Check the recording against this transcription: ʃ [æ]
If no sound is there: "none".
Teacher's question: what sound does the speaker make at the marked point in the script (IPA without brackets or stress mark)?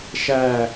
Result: æ